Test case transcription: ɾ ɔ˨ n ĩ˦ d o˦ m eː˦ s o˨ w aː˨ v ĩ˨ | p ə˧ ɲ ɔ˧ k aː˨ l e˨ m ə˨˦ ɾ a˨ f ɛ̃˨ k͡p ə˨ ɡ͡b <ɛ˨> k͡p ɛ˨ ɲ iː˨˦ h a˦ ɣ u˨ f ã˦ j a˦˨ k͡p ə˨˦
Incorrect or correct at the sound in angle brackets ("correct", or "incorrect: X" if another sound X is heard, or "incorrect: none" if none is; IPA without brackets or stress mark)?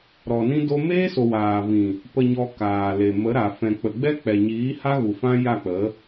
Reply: incorrect: ɛ˦